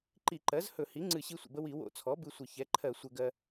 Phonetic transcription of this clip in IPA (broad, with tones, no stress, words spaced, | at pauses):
ǃi˧˩˧ǃɜ˩˥zhɵ˧˩˧hi˩˥ ŋ͡ǀɨ˧˩˧ɕi˧sʷə̰˩bə˧ wi˧˩˧ wo̰˧t͡sʰɔ˩˥ bɨ˧sʷə˧˩˧ çɛ˩˥ǃʰɜ˧˩˧sʷɘ˧˩˧ ɡɜ˧